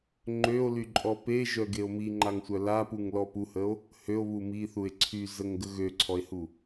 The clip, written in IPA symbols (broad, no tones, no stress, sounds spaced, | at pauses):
ŋ͡ǃ ø o̯ l y ǃʼ ɔ p e ʒ œ ɡ e o̯ m i ŋ͡ǃ a ŋ sʷ œ l a p u ŋ l ɔ p u h ə o̯ | h ø o̯ β u m i θ u e̯ ǀʰ y z ə ŋ ɡ ə ɣ ø ǀʰ ɔ e̯ h u